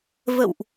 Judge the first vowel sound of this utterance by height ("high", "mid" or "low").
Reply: mid